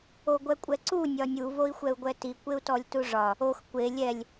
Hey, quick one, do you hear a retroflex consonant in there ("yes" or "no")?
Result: yes